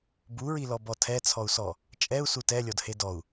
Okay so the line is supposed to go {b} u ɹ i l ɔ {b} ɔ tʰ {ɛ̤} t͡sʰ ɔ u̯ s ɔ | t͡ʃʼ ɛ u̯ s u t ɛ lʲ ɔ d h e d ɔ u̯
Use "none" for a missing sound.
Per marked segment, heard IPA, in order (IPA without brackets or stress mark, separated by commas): b, b, ɛ